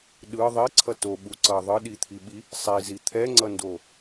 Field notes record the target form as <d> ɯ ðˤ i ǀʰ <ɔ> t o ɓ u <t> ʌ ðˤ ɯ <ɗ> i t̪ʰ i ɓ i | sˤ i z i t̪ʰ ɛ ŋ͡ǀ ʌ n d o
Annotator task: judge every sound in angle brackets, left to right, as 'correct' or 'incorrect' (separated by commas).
incorrect, incorrect, incorrect, correct